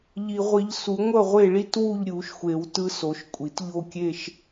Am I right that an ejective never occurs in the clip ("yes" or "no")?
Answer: no